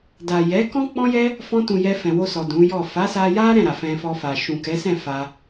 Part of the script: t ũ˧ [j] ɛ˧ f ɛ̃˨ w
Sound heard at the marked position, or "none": j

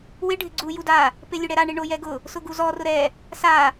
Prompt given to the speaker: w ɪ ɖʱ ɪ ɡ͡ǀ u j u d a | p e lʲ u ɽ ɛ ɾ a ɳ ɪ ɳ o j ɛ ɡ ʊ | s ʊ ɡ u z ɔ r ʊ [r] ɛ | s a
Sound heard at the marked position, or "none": ɾ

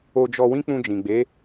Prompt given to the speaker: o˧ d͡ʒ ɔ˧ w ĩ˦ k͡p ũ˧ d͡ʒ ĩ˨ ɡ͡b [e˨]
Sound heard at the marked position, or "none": e˨˦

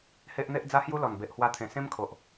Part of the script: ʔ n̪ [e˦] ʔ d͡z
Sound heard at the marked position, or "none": e˦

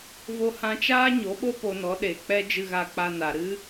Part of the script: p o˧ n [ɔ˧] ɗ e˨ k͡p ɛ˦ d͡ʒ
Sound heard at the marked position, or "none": ɔ˨˦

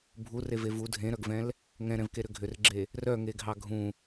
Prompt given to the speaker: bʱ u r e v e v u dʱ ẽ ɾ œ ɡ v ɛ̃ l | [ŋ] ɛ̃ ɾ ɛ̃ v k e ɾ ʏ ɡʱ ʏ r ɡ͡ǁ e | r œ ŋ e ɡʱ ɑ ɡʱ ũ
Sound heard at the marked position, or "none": ŋ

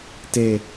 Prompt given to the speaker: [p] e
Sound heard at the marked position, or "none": t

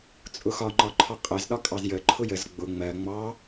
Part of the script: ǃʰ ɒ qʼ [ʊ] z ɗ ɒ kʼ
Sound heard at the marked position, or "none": ə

